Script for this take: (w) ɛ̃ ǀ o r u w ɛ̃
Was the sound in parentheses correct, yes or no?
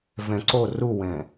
no